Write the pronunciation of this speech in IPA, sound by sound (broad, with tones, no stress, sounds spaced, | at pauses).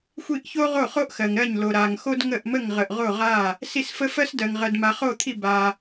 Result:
xʷ i˥˩ ʔ ç o˥ ʁ o˥˩ χ o˥ ʔ x ɜ˨ ŋ ɾ ɜ˥˩ ɲ l o˨ ɾ a˨ ŋ x o˥ d ŋ ə˥˩ ʔ m ə˥˩ ŋ ʁ ə˨ ʔ ʁ o˥˩ ʁ a˥˩ | s i˥˩ s f ə˥ f ɜ˥ s d ɜ˨ ŋ ʁ ɜ˨ d m a˨ χ o˥˩ t̪ʰ i˥˩ b a˨